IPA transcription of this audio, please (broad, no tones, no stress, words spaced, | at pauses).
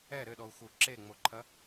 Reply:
ɛ ɾɘɗɔu̯xu ǁeŋ͡moǃʰɐ